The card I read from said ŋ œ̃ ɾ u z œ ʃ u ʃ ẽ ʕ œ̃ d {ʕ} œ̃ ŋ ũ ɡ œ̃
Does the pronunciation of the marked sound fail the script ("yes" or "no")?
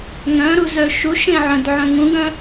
no